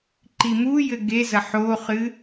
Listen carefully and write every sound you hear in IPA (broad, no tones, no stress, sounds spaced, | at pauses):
ǃ i m u j ɘ ɡ e z ɐ ħ o χ ɨ